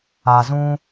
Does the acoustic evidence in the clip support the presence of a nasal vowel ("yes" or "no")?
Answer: yes